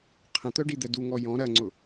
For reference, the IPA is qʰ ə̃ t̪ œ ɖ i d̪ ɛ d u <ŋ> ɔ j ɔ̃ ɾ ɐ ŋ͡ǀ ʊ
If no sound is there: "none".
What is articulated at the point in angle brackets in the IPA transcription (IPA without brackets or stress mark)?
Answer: ŋ